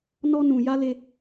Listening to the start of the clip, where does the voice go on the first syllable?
high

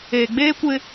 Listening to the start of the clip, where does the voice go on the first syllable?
low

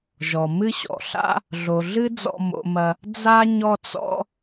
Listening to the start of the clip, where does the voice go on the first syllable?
low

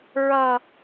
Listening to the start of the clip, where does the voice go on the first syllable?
high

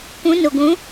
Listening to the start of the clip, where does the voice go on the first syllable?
rising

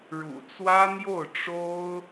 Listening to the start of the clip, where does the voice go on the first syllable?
low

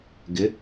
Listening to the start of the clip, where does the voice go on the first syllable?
rising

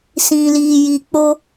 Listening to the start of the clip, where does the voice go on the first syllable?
low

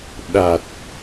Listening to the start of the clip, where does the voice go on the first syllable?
low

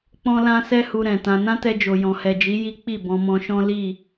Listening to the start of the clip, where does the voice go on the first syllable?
high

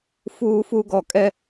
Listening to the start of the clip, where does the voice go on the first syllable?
high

